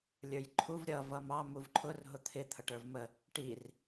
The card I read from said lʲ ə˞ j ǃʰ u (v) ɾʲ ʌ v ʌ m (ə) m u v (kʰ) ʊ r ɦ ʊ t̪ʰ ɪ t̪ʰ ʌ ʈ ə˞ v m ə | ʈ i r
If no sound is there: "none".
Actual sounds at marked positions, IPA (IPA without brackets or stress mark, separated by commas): v, ɑ, ǃʰ